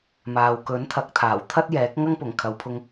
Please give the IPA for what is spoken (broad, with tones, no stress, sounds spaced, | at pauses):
m aː˨ w k ɵ˨˥ n t̪ʰ ɐ˨˥ k̚ t̪ʰ aː˨˩ w t̪ʰ ɐ˥ t̚ j ɛː˨˥ k̚ ŋ ɐ˥ ŋ p ʊ˨˩ ŋ kʰ ɐ˨˧ w pʰ ʊ˧ ŋ